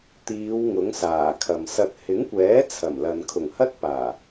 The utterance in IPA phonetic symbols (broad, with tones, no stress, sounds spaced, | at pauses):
t̪ iː˨˧ w ŋ ʊ˨˥ ŋ s aː˨˩ kʰ ɐ˨ m s ɐ˨ t̚ h ɪ˨˥ ŋ kʷ ɛː˨˥ t͡sʰ ɐ˨˩ m l ɐ˨ n kʰ ʊ˨˩ ŋ h ɐ˥ t̚ p aː˨˩